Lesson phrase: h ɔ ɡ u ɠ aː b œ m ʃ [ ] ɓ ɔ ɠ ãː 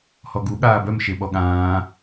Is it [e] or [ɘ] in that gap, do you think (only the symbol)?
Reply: e